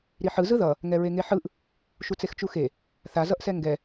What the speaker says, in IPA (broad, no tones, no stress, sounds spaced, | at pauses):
ɾ i ħ ɯ z ɯ ð ʌ | ŋ ɛ ɹ e ŋ e ħ ɯ ʔ | ʃ u t͡s e x t͡ʃ u x e | θ a z ʌ ʔ s ɛ ŋ ɡ ɛ